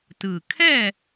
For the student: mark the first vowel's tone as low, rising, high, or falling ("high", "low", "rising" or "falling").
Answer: low